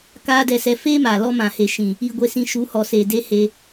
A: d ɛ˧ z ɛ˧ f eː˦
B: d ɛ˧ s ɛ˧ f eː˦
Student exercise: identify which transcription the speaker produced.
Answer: B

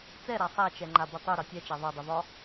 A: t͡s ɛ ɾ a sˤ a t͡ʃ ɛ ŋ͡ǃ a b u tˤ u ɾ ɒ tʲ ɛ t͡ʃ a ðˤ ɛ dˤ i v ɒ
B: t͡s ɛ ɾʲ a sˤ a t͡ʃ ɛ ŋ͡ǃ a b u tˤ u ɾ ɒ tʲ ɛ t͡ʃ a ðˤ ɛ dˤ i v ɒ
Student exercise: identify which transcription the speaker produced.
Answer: A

